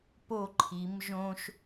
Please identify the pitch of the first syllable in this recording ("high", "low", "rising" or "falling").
falling